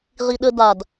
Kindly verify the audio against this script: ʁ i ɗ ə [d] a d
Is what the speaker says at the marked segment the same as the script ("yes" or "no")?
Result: yes